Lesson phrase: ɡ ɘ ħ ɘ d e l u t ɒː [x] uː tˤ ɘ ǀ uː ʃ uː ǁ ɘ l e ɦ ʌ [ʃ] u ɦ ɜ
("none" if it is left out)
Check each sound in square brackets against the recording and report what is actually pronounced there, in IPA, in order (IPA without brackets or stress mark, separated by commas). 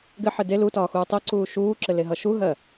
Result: x, ʃ